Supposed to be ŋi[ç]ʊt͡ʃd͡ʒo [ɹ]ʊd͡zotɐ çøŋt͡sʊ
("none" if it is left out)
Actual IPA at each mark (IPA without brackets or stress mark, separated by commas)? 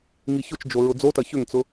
ç, ɹ